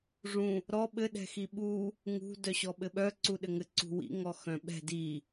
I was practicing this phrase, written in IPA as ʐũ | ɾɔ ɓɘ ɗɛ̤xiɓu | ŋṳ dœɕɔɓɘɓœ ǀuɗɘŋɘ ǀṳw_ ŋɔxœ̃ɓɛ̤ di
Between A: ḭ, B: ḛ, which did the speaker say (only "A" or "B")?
A